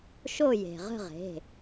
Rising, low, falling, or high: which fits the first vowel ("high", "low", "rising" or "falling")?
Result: falling